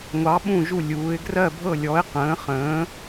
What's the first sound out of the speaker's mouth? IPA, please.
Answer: ŋʷ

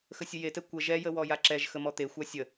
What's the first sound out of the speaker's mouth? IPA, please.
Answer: x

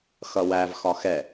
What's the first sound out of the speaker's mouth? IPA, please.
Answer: x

